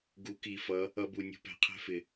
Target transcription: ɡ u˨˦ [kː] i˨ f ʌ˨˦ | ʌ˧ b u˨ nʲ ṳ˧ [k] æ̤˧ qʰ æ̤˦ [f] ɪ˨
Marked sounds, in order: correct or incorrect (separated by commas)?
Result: incorrect, incorrect, correct